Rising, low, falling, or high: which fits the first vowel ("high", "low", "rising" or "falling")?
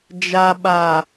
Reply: low